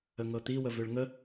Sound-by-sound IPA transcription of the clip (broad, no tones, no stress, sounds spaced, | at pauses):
ə ŋ ɤ t̪ i w ə v ø ɭ ŋ ə